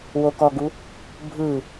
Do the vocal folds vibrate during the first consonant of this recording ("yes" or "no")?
yes